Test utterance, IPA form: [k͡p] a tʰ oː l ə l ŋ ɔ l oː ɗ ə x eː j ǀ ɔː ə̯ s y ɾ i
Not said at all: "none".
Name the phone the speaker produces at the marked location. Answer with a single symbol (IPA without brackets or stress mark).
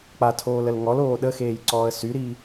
k͡p